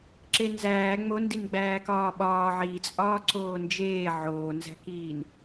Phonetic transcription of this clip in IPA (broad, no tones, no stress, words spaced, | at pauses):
ǁenzæː ŋ͡mondin ɡ͡bæːkɒːɓɒː ʕit͡sʼɒː ǀoːnd͡ʒeː ʕoːnzæ̤kiːn